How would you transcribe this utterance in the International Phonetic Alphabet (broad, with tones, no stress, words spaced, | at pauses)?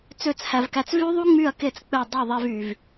t͡sø˦˨t͡shæ˧vkæ˧t͡s vy˦ðˤu˦ ŋ͡my˦˨ɐ̯ke˦˨t͡s k͡pe˦˨dˤɯ˦˨ ðˤe˦vy˧v